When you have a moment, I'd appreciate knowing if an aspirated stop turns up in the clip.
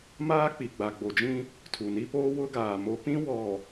yes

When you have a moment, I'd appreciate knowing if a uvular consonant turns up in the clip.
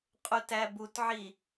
yes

